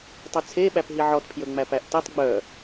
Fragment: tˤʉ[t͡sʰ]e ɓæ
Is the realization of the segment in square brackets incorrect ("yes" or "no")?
no